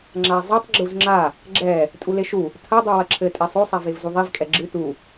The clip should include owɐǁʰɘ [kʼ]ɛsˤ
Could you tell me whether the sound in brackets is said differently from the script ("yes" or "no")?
yes